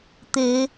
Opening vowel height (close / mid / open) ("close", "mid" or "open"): mid